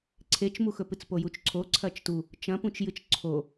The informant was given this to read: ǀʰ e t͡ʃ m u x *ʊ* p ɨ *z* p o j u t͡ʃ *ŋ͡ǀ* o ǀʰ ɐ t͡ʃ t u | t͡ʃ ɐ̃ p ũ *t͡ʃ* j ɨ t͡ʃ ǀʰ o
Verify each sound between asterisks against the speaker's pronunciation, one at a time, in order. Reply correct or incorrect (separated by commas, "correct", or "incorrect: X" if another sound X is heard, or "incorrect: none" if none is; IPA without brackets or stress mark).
incorrect: ɵ, incorrect: t͡s, incorrect: ǀʰ, correct